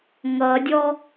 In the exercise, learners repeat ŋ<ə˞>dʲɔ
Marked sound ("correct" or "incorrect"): incorrect